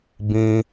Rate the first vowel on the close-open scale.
close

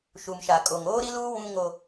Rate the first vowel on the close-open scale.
close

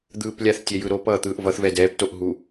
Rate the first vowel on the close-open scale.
close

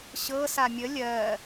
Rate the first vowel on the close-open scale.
mid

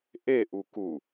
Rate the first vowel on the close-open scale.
mid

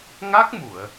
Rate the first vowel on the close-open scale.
open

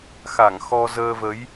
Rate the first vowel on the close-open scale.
open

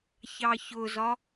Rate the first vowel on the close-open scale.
open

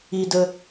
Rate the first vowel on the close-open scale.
close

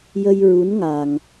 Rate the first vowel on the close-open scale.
mid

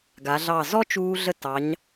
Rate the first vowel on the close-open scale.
open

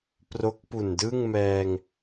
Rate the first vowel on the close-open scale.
mid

